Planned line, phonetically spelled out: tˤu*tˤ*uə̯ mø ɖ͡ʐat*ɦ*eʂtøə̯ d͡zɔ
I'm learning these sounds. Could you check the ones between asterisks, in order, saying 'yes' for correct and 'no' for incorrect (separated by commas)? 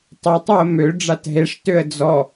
yes, yes